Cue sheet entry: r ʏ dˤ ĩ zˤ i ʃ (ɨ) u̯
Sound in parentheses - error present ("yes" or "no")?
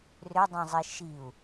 yes